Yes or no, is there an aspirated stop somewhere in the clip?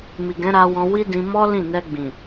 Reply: no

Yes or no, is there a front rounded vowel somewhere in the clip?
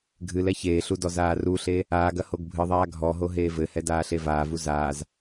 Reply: no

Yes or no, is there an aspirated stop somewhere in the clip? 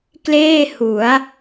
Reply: no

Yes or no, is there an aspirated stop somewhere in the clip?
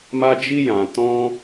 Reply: no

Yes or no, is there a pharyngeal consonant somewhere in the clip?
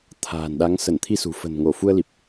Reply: no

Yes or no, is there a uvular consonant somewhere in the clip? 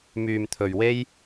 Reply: no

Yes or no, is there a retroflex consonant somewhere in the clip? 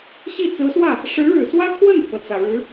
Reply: yes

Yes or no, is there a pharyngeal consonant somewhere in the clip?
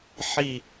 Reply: yes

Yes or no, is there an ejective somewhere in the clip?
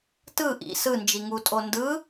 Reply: yes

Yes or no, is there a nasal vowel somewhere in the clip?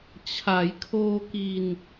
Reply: no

